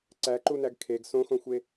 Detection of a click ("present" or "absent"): present